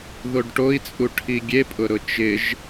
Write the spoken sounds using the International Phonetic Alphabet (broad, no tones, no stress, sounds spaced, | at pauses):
ð o ɖ ʈ o i̯ t͡sʼ u ʈʰ i ɡʲ e pʼ ʊ ɾ ʊ t͡ʃ ɪ ʒ